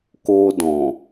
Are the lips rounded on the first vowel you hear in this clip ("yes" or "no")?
yes